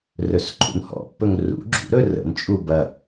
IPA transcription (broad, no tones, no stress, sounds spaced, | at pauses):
r ɵ s ǃʰ ṵ n h ɔ̰ pː ɵ ŋ r ṵ ɡ͡ǁ ṵ ɾ ɵ r ə̰ n t͡ʃʼ u b ɐ